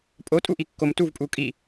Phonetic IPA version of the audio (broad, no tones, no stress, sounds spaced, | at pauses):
pʼ o tʼ u ʔ i kː o m t u v pʼ u kʼ i